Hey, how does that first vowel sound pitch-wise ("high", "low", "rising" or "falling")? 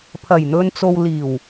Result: low